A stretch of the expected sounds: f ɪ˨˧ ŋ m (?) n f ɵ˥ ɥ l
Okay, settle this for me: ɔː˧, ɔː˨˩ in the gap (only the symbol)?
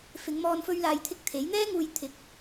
ɔː˧